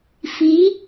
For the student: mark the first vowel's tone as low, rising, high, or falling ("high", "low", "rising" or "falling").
rising